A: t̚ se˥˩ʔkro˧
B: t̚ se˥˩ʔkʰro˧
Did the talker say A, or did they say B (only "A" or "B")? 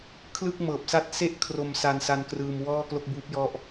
B